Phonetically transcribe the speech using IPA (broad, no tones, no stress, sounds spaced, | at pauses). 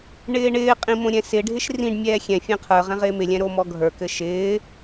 ɳ ɪː ɳ ɪː qʼ ĩ m õ ɾʲ ɛ̃ s ɪ ɖʱ ɪ ʃ r ĩ ɖ mʲ ɛː xʲ ɛ̃ fʲ ɛ̃ qʰ ə˞ ʁ ɛ̃ ʁ ɪː m ɪ lʲ ɛ̃ ɾ o m ɔ ɡʱ ə˞ k ɘ ʃ ɪː